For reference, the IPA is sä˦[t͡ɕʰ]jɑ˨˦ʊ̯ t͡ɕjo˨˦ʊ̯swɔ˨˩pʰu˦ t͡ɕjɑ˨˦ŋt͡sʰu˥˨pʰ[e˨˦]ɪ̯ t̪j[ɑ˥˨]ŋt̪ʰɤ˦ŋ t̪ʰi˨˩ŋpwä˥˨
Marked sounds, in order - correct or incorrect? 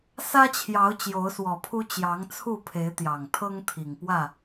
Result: correct, correct, incorrect

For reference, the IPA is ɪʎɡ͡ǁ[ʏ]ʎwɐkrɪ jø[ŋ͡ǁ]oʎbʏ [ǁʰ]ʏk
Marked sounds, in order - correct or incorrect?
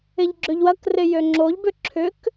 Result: correct, correct, correct

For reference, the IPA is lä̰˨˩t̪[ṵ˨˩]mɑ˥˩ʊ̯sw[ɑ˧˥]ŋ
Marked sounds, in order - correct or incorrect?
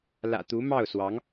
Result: incorrect, correct

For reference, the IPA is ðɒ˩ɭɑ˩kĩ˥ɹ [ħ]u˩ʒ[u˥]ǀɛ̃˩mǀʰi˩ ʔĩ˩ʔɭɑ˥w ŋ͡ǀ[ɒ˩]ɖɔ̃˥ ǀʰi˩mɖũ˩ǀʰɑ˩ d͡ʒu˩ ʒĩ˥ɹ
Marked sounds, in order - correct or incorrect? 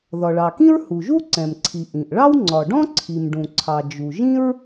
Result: incorrect, correct, correct

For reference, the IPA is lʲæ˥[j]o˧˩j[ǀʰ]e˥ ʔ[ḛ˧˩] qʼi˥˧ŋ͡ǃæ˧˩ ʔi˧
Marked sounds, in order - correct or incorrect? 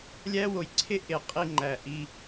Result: incorrect, correct, incorrect

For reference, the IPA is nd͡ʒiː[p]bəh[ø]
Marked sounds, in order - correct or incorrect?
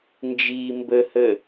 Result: incorrect, incorrect

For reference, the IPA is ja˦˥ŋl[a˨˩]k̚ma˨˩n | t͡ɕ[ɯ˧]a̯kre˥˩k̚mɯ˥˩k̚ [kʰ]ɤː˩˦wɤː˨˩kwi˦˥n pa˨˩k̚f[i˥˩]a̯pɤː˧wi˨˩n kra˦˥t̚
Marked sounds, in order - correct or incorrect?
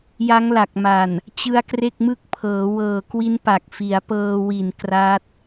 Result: correct, incorrect, incorrect, incorrect

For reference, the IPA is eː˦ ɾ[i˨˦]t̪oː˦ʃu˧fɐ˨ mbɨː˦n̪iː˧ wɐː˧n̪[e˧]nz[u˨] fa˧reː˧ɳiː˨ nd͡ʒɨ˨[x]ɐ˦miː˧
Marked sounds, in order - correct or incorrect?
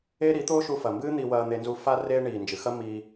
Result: correct, correct, incorrect, correct

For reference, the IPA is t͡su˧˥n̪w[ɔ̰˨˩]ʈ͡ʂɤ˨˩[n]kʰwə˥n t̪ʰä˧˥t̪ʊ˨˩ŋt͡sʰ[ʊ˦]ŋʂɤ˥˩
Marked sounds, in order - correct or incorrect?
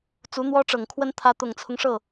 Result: incorrect, incorrect, correct

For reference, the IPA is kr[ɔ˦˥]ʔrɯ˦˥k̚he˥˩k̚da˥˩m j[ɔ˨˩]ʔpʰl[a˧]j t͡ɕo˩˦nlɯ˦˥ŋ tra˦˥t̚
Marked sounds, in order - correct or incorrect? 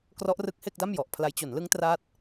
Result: correct, correct, incorrect

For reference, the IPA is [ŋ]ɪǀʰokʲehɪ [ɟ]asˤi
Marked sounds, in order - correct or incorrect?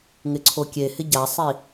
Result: correct, correct

